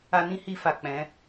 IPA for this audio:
a˧ n ĩ˦ h i˧ f a˨ k͡p ɛ̃˨˦

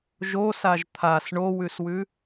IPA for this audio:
ʒ o s a ʒ t̪ʰ a s ɳ o w ʉ s w ʉ

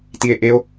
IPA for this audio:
t i e̯ ʔ e o̯

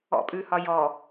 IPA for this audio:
ɔ̰ pʼ ʉ h ɒ j ɔ

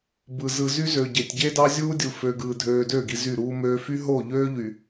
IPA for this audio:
b ɯ˨ z ɯ˨ z y˦ z ø˨ ɟ e˨ tʲ ɟ e˦ d ɑ˦ zʲ uː˦ dʲ u˨ f ø˨ ɡ ɯː˨ dʱ øː˨ d ø˦˨ ɡ i˨ z y˦˨ ɾ uː˦ m øː˦ f y˦ ɦ o˦˨ ʎ øː˦ ʎ y˨

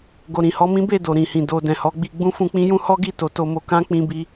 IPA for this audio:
ɡ o˨ ɾ ĩ˨ h ɔ˧ m ĩ˦ b e˦˨ d o˨ ɾ ĩ˨ h ĩ˨ d o˧ d ɛ̃˨ h ɔ˨˦ ɡ͡b i˧ ɡ͡b ũ˦ f ũ˧ k͡p ĩ˦ j ũ˦ h ɔ˦ ɡ i˦˨ t o˨˦ t o˧ m o˧ k ã˦ k͡p ĩ˦ b i˦

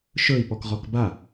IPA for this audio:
ʃ ɵ i̯ p ɔ k ʁ ɔ k b a

